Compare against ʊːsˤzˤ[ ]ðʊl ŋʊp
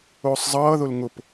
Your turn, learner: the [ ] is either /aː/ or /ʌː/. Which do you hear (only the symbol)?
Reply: ʌː